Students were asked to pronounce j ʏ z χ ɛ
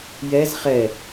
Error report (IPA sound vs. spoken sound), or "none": ʏ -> ɛ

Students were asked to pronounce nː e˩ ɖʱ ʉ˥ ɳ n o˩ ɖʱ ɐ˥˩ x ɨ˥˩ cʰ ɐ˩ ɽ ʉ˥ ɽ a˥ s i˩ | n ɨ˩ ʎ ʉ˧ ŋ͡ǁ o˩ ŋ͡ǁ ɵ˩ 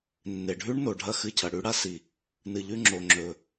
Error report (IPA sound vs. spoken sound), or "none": none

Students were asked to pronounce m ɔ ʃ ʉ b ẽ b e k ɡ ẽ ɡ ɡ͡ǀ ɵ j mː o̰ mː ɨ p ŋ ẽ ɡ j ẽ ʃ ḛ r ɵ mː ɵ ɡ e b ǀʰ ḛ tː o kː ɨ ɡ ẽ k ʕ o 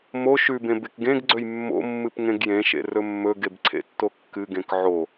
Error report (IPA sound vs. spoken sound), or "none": ɔ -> o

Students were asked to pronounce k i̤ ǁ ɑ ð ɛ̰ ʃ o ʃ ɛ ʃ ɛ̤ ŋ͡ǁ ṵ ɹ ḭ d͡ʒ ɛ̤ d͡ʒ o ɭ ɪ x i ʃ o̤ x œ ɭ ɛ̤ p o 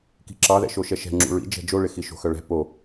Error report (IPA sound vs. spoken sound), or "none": none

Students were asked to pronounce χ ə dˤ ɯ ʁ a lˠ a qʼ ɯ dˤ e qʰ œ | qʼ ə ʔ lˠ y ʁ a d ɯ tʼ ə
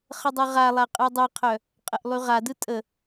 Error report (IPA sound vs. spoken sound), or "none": none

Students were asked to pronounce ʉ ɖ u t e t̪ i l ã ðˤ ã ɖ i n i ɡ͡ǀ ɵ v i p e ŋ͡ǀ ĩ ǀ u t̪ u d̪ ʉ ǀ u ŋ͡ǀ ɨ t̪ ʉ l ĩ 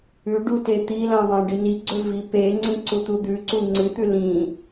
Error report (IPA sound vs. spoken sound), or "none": none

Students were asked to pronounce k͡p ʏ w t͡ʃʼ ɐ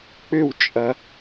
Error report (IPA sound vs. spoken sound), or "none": none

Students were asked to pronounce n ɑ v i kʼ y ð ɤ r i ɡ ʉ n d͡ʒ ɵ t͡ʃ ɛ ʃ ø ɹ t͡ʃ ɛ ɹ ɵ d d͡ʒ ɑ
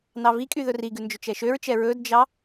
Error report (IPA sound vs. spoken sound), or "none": ɤ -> ɵ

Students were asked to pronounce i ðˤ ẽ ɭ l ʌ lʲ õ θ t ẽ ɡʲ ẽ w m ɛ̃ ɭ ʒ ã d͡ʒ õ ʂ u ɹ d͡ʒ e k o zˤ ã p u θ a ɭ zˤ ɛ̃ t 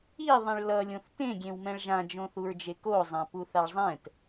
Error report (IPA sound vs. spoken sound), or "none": ʂ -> θ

